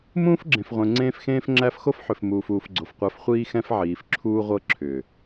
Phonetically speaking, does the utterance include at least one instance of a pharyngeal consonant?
yes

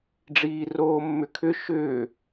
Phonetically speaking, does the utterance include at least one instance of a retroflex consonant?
yes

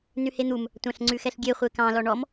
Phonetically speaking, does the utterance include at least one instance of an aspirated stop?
no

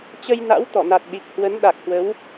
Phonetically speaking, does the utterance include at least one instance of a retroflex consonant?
no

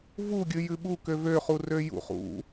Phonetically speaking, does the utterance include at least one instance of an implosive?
yes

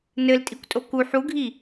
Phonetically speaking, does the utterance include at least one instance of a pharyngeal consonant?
yes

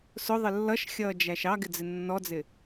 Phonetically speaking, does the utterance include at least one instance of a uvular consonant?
no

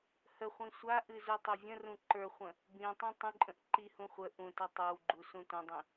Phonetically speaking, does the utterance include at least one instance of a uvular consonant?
yes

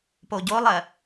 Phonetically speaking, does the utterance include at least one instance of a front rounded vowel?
no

